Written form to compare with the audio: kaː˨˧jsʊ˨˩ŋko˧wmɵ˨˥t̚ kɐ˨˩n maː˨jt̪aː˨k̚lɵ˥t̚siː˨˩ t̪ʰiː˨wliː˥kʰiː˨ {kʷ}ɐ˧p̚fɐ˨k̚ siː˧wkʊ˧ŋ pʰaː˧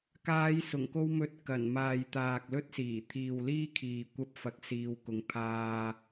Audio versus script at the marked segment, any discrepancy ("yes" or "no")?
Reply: no